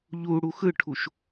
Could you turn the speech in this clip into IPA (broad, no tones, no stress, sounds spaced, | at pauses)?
ʎ u ɽ u x ɯ ʈʰ u ʃ